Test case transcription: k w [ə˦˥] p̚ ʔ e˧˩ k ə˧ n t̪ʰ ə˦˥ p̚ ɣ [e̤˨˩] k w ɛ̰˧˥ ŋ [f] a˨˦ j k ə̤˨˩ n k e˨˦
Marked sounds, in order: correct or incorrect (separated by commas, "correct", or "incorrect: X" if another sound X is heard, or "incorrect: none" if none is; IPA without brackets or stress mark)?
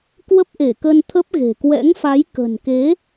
correct, correct, correct